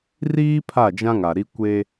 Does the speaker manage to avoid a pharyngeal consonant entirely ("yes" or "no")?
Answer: yes